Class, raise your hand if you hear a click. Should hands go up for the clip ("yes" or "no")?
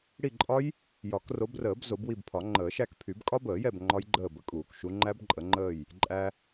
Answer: yes